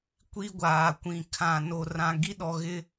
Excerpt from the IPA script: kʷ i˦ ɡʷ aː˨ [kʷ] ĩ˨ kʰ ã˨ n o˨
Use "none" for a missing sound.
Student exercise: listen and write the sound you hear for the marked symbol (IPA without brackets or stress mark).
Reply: kʷ